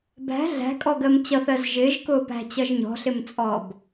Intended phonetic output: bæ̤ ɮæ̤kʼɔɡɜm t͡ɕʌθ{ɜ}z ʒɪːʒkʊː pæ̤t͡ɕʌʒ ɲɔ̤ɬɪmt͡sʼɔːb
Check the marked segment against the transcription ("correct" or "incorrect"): correct